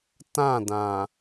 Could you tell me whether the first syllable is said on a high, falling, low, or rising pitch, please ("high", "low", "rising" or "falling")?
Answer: falling